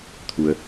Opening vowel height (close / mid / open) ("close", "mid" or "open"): close